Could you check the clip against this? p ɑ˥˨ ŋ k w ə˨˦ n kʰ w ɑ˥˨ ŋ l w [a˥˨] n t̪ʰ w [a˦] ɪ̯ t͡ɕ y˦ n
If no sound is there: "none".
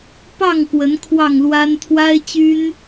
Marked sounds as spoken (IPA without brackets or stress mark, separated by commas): a˦, a˦